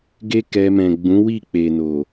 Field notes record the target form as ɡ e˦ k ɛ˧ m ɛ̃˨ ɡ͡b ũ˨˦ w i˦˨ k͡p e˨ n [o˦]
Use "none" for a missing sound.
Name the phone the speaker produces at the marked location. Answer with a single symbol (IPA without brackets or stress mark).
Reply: o˨